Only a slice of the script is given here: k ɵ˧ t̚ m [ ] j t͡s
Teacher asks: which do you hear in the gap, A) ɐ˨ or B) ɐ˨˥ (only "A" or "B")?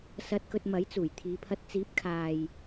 B